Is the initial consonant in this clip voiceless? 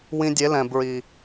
no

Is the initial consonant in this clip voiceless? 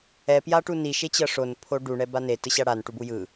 yes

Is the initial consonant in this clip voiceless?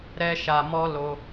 no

